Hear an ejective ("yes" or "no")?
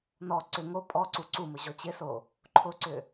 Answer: yes